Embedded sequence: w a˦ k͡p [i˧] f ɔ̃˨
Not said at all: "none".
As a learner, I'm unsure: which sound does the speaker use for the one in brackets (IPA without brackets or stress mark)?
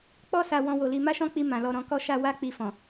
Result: i˧